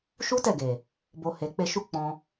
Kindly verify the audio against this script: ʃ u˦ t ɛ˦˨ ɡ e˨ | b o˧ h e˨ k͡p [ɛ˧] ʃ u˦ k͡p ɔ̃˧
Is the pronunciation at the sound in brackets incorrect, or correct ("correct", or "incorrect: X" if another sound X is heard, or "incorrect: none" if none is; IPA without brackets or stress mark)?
incorrect: e˧